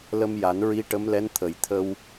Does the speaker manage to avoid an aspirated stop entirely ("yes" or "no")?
no